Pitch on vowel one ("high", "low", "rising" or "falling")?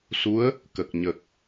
rising